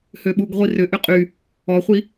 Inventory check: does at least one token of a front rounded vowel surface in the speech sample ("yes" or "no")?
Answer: yes